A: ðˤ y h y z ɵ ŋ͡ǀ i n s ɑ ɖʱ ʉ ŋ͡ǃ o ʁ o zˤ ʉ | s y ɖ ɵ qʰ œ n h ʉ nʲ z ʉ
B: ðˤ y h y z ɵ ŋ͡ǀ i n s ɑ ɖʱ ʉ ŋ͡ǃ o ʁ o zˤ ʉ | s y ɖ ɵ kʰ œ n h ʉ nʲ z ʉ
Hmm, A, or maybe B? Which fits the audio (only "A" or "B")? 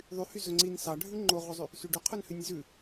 A